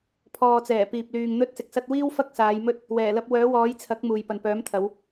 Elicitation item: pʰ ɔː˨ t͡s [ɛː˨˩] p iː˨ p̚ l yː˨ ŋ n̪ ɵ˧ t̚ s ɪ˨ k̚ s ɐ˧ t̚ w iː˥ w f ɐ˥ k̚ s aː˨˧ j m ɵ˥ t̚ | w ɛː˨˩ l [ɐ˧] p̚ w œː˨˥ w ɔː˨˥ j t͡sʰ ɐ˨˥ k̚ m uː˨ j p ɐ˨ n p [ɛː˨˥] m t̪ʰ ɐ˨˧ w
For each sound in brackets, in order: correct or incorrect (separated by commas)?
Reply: correct, correct, incorrect